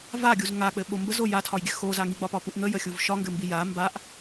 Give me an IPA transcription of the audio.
vaɡʲuz ŋak͡pɘɓo mbəzo jatʰɒjɡʲɘ xoza ŋiɡ͡bɒpɒpuʔ ŋəjəxʲuv ʃɒŋɡɘmbi ja mbaʔ

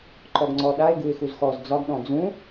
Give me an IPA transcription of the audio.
ǃɔɡŋ͡ǀɔɗaɪ̯ ɡuɪ̯xuzxɔz d͡zɒɡɗɔ̃ d͡zũ

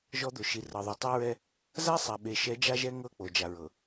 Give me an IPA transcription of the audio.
ʒɔ˦d̪o˨ ʃi˨rɤ˨ðˤu˨ tˤɛ˦ɹɛ˦ | za˦sˤa˨ ɓe˨ʃɛ˨˦ d͡ʒa˦ʒɛ˦ ŋɤ˦˨k͡po˨ d͡ʒa˨ɹɤ˨

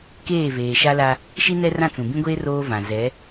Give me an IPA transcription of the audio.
keː˦˨veː˨ʃa˦ la˦ | ʃi˦nɛ˦ rã˦˨t͡sũ˨bĩ˦ɡʷeː˦ roː˦vã˨ zɛ˨˦

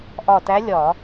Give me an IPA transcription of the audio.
ʔɒ˧˩tæ˧˥lʲɒ˧˩˧

